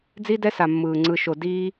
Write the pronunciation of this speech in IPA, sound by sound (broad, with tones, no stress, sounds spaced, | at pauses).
d͡z i˥ d ɛ˥ s a˧ mː ɯː˧ ŋ͡ǀ ɯ˧ ʃ o˧ d iː˥